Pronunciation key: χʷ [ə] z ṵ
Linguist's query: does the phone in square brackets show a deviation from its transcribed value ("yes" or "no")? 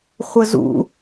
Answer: no